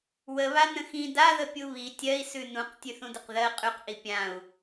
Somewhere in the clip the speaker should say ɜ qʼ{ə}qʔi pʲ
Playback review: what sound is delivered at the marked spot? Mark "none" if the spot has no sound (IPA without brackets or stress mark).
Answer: ʉ